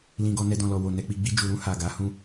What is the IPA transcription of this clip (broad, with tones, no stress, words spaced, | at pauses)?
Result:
lĩ˨ ɡɔ˧nɛ˧dɔ̃˨lɔ˨ wo˨ nɛ˨k͡pi˨ɡ͡bi˧ d͡ʒu˨ɾũ˧ ha˨ɡa˨˦hũ˦˨